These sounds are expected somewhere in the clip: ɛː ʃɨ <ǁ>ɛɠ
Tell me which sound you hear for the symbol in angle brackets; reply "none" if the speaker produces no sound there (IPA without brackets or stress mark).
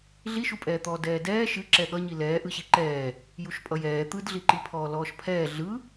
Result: ǁ